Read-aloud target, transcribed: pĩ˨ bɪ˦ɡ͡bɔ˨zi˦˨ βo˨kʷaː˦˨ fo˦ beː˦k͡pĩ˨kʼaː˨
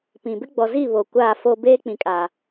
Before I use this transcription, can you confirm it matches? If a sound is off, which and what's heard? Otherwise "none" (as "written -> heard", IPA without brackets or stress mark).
none